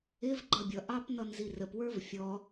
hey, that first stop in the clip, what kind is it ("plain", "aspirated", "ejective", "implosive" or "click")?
click